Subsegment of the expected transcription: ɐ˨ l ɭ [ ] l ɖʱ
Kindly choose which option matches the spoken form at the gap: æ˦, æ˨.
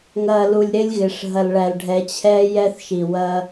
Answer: æ˨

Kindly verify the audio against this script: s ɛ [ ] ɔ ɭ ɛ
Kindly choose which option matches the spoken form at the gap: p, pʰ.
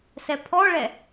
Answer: pʰ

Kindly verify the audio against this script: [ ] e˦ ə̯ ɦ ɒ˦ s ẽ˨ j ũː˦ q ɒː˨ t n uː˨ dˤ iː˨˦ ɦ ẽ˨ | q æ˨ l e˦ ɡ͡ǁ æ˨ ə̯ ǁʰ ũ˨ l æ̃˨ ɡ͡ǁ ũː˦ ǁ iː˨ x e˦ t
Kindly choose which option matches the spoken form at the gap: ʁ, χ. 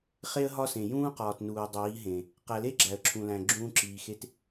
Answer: χ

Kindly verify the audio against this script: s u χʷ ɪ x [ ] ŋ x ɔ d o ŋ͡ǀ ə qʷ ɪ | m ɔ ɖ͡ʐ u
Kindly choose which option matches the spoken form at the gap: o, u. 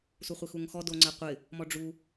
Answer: u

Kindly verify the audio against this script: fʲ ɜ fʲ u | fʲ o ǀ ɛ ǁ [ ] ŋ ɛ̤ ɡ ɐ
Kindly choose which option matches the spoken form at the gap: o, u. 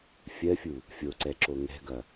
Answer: o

